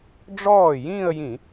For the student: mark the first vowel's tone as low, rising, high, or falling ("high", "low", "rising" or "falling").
falling